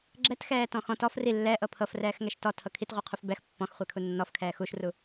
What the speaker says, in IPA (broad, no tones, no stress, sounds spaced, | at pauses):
ɡ͡ǁ ɛ t x ɛː t ɔ̃ x ɔ̃ t ɔ f r i lː ɛ ʔ ɤ pʰ ɤ f r ɛː x ŋ ɛ ʃ t ɔ tʰ ɤ kʰ i t ʁʷ i qʰ u f b ɛ x pː ɔ̃ x χʷ e kʰ u nː ɔ f kʰ ɛː x u ʃ r u